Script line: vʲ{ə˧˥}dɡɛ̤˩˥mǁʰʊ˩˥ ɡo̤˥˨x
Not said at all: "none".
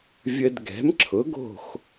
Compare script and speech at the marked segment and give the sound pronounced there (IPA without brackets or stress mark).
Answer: ə˧